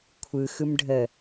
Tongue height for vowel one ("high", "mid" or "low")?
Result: high